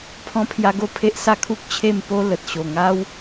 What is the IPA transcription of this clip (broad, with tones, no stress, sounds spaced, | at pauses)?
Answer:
pʰ ɔ̃˧ pʰ j a˧ ɡ o˧ pʰ e˦ ʔ s a˥˧ kʰ u˦ k̚ t͡ɕʰ e˥˧ m p o˦ l ə˨ t̚ ɕ o˨˩ ŋ a˦ w